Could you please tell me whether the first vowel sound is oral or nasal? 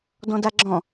nasal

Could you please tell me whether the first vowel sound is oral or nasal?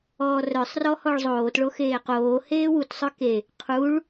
oral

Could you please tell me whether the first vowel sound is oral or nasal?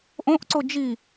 nasal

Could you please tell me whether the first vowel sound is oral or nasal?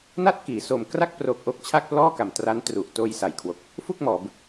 oral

